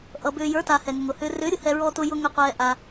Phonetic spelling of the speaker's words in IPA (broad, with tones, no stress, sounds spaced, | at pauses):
ʔ ʌ˧ b ʏː˧ j ə˞˧˥ t a˧ h ɛ˧ ŋ ʊ˧ ŋ ʊː˧ h ʏː˧ r ʏː˧˥ ɾʲ ʊ˧ h ɛ˧ ɹ ɔː˧ t ʊ˧ j ʊ˧ ŋ ʏ˧ qʷ ɛː˧ ʔ a˧